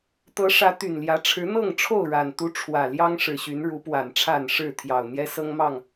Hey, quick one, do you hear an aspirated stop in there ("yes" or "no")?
yes